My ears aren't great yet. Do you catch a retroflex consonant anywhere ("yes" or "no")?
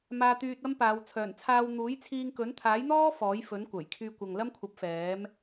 no